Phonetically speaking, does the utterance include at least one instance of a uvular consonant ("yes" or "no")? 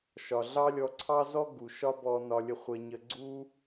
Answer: yes